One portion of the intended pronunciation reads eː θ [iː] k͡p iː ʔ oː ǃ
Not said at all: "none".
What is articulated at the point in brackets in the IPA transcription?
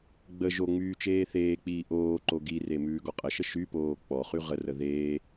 eː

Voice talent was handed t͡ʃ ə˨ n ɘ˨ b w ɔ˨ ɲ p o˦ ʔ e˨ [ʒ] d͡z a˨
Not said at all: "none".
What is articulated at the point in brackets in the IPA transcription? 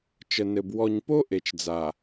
t͡ʃ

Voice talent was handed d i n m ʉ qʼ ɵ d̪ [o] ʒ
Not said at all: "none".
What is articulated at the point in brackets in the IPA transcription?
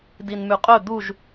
u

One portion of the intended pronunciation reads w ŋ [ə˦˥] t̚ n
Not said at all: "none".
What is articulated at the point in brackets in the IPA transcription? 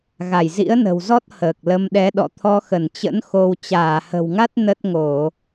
a˦˥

